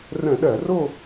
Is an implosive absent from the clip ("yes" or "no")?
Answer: no